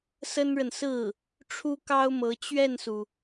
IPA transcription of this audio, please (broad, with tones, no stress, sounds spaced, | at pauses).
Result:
s ə˥ n ɻ ə˨ n s ɹ̩˥˩ | ʈ͡ʂʰ u˥ k ɑ˥ ʊ̯ m ɤ˧˥ t͡ɕ ɥ ɛ˥˩ n s u˩